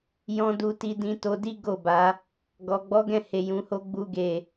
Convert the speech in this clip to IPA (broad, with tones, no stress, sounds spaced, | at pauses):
j ɔ̃˧ d u˧ t i˧ d ĩ˧ t o˧ d i˦ ɡ o˦˨ b a˨˦ | ɡ ɔ˨ ɡ͡b ɔ˨˦ ɡ ɛ̃˦˨ h e˨ j ũ˨˦ h o˦ ɡ͡b u˦ ɡ e˦˨